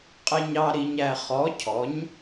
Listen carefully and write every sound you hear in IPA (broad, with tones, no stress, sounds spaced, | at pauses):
qʼ ɪ˨ ɲ ɑ˨ ɾ i˨ ɲ æ˨ χ ɔ˩˥ cʰ ɔ˩˥ ɲ